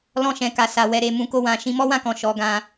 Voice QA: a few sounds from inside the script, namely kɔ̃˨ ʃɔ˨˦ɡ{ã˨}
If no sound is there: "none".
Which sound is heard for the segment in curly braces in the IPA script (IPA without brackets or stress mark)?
ã˧